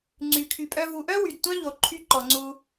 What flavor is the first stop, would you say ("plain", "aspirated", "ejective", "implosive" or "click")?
click